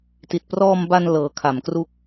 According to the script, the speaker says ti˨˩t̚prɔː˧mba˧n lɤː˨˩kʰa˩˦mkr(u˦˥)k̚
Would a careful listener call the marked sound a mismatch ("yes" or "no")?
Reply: no